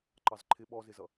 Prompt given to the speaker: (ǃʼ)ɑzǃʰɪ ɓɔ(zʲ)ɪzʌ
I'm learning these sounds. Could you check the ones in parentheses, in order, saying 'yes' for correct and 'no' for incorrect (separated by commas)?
no, no